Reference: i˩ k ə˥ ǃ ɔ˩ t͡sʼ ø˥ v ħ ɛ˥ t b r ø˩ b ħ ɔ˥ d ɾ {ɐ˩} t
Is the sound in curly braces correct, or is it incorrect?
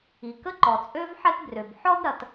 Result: correct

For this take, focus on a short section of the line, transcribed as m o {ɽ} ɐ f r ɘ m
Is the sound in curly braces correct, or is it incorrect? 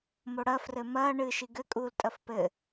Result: correct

